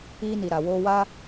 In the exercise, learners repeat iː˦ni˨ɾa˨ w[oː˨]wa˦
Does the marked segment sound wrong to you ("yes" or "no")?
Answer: yes